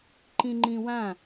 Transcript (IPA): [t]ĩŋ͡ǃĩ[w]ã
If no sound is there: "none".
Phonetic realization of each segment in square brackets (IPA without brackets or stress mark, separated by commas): ǃ, w